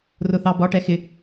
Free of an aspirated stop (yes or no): yes